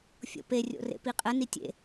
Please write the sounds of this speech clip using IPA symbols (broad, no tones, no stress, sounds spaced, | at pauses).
fʲ o̰ p e rʲ o̰ r ḛ p i qʼ ə n i tʲ ḛ